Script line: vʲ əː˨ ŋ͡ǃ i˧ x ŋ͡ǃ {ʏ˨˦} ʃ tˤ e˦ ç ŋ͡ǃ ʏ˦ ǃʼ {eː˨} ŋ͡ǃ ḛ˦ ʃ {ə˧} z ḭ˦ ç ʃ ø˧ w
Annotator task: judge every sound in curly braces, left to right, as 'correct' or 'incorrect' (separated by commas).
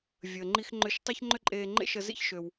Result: incorrect, incorrect, correct